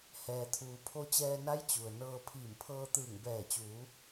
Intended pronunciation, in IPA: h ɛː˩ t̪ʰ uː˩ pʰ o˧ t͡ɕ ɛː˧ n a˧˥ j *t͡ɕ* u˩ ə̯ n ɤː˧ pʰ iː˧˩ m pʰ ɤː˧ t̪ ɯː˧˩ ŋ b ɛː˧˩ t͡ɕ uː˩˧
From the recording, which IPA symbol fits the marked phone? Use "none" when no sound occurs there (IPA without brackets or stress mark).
t͡ɕ